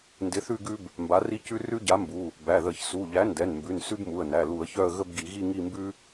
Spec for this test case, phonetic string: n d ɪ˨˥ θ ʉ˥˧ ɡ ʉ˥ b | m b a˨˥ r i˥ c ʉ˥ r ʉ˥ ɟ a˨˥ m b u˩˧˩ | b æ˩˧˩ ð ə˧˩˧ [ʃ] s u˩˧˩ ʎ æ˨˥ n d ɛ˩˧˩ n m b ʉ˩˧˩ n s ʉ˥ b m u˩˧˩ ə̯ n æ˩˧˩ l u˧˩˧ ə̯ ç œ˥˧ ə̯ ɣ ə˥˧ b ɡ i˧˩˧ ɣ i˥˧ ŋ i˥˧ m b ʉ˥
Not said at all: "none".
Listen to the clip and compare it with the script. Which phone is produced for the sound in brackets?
ç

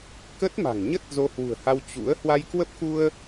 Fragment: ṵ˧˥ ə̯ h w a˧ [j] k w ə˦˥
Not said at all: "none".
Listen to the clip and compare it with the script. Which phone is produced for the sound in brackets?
j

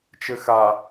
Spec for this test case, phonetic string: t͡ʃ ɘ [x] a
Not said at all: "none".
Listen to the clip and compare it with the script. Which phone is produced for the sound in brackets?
x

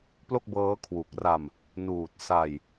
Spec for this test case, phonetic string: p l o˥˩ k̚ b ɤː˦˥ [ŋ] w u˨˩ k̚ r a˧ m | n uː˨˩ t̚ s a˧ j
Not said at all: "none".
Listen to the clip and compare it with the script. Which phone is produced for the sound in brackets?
kʰ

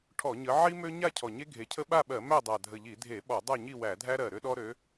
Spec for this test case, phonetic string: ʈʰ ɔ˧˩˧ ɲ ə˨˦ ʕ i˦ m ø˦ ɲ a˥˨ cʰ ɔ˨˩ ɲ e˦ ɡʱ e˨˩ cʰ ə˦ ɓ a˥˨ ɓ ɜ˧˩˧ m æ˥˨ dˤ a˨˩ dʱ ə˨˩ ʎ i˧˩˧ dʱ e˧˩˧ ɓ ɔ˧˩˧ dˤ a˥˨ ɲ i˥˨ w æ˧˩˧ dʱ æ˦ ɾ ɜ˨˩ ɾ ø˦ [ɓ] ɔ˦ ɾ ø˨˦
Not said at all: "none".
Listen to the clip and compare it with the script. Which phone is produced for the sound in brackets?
ɗ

